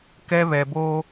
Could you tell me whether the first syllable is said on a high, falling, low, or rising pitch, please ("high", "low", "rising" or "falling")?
high